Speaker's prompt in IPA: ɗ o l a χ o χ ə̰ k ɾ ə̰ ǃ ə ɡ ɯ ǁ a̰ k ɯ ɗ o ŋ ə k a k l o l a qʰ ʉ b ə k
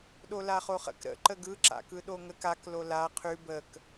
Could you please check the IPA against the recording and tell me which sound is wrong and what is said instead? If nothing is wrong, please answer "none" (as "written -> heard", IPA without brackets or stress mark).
none